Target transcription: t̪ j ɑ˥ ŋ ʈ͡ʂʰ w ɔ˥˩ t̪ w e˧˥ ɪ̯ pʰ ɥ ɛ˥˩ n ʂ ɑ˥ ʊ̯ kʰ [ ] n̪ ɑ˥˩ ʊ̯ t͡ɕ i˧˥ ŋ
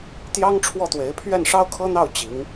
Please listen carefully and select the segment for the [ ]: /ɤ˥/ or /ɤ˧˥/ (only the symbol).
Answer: ɤ˥